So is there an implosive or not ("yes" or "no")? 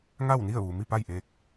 no